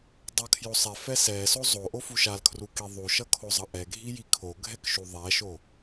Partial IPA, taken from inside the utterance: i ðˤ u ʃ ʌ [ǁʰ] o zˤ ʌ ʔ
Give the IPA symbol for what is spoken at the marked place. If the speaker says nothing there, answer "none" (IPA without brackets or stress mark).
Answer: kʰ